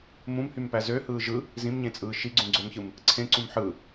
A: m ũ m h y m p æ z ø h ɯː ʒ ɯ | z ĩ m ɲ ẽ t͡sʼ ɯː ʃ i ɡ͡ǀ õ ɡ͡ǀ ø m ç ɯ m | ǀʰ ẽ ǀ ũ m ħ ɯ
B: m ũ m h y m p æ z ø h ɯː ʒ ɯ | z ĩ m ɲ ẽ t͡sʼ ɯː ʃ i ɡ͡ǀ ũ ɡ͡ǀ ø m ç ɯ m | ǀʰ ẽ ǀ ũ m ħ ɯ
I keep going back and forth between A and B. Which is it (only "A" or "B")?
B